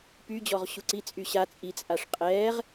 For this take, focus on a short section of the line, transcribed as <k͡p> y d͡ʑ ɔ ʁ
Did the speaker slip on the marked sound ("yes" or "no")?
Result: yes